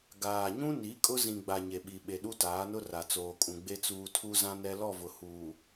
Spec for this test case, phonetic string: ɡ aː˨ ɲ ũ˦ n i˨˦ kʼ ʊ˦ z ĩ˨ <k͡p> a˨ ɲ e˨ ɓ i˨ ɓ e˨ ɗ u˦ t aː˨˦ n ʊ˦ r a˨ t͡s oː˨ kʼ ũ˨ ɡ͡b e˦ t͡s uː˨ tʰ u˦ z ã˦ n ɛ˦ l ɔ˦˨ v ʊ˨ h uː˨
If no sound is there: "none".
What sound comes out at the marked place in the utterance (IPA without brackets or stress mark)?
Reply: ɡ͡b